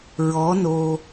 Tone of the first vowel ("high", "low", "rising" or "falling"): rising